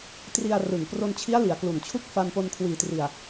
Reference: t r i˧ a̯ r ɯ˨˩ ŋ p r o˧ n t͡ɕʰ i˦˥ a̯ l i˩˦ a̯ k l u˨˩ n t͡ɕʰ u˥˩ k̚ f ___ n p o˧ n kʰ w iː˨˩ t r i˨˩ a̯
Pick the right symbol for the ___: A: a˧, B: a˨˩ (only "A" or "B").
A